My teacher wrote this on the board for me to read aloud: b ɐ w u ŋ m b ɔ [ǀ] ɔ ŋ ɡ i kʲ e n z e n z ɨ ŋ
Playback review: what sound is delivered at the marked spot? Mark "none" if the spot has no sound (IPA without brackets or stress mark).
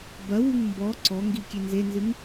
ǀ